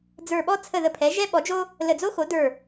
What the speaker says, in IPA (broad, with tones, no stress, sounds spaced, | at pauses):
d͡z ə˞˧˩ ɓ ɔ˥ t͡sʰ ə˧˩ ð ə˧˩ pʰ ɛ˩˥ ʒ ɛ˥ ɓ ɔ˩˥ d͡ʒ o˥ | l ə˧˩ d͡z o˥ x o˩˥ d ə˞˧˩